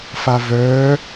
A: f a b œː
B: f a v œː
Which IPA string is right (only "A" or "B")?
B